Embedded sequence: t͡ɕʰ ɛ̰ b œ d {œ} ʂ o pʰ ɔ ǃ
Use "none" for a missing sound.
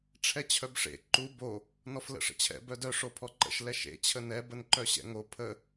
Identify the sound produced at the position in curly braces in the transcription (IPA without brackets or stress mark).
œ